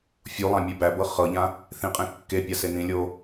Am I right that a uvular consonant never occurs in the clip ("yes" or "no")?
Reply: no